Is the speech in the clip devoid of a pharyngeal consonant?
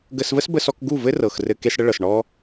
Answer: yes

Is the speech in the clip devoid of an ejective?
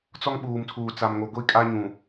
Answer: no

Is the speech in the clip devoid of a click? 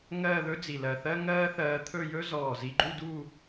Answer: no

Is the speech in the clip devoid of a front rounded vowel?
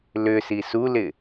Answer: no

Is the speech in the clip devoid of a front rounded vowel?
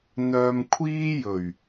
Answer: no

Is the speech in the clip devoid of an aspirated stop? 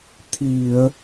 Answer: no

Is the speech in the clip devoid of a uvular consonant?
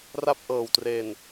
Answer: yes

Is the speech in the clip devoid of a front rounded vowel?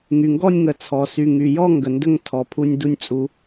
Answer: no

